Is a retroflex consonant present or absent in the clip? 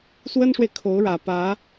present